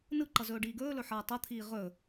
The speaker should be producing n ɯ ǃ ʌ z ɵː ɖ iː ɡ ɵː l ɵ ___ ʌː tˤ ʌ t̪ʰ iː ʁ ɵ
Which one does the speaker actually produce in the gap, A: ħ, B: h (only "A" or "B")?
A